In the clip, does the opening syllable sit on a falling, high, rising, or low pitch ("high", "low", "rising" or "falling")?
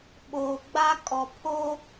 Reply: low